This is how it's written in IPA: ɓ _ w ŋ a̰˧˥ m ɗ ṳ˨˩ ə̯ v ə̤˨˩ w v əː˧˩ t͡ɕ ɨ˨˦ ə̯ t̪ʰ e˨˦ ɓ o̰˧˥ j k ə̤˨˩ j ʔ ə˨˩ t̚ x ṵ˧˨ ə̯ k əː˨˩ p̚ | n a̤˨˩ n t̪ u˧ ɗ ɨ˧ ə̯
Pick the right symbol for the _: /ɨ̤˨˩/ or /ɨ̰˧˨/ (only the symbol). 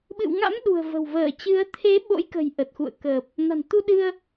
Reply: ɨ̰˧˨